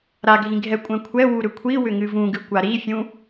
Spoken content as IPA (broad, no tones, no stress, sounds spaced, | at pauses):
ɾ a ɡʱ ĩ ɡʱ ɛ kʷʼ ɛ̃ kʷʰ ɛ w u ɾ ʏ kʷʰ i w ʏ ŋ ɨ v ũ ɡ ɨ kʷ a ɾ i fʲ ũ